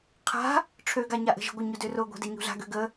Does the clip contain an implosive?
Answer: no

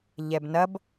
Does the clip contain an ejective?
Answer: no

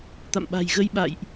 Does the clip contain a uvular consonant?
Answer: no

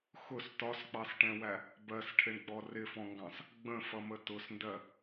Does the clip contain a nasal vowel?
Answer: yes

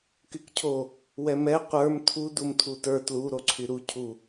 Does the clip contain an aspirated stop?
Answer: yes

